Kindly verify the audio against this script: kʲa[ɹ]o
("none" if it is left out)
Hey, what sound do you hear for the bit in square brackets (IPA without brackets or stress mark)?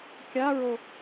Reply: ɹ